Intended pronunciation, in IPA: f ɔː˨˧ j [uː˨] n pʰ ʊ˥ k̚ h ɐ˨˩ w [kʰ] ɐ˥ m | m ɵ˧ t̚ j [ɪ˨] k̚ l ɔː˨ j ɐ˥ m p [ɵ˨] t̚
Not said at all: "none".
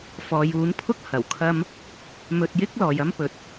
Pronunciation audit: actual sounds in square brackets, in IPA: uː˨˥, kʰ, ɪ˥, ɵ˨

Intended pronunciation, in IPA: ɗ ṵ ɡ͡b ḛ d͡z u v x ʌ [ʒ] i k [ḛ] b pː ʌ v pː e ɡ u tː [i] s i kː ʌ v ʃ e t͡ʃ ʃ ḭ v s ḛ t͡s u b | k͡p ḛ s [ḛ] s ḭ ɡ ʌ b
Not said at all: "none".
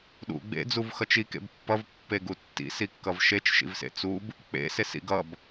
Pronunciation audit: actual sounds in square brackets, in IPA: t͡ʃ, ḛ, ḭ, e

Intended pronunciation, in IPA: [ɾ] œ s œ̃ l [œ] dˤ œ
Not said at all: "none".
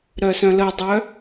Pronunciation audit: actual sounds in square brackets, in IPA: ɾ, ə

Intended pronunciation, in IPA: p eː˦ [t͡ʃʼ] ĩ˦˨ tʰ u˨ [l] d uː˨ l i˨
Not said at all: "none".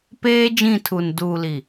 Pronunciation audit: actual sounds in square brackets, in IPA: d͡ʒ, n

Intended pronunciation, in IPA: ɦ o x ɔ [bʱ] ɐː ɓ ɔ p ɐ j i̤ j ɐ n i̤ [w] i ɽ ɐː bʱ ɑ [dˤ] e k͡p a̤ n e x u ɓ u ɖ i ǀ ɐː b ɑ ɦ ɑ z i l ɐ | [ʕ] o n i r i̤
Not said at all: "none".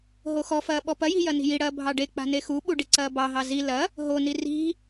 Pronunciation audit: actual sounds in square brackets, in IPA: f, j, ɖ, ɦ

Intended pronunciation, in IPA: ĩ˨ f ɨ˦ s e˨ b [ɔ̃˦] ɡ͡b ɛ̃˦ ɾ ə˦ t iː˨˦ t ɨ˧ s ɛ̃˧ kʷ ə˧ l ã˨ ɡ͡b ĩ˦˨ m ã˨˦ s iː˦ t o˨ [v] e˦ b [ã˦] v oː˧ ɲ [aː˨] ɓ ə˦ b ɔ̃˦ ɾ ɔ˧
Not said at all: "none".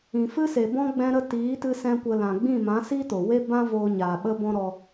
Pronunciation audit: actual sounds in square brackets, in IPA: ɔ̃˦, w, ã˦, aː˨

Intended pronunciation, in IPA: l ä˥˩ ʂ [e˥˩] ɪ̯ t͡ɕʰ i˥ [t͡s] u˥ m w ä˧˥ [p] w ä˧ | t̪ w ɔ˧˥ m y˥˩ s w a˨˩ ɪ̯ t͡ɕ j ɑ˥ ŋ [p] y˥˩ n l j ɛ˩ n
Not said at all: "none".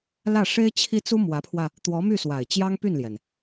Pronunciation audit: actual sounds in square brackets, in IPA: e˥, t͡s, pʰ, p

